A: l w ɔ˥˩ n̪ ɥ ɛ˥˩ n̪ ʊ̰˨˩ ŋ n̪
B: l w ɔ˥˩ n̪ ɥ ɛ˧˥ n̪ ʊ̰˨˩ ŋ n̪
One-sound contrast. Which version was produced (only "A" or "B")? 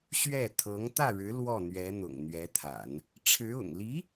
B